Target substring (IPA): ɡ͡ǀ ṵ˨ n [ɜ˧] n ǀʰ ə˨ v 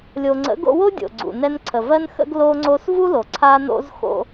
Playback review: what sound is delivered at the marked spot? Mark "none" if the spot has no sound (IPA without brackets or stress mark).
ɛ˧